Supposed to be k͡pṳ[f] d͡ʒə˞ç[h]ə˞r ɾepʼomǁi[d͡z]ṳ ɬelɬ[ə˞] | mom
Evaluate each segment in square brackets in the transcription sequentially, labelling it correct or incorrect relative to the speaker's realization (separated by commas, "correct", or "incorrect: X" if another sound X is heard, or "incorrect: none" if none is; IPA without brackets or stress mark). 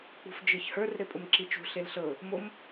correct, correct, incorrect: t͡ʃ, incorrect: ɤ